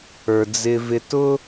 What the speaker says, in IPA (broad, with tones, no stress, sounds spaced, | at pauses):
ə˞˩ d͡z ɪ˧ v ɪ˧ t ʊ˥